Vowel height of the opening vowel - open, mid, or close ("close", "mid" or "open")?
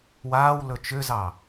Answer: open